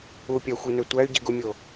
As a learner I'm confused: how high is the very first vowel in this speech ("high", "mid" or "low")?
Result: high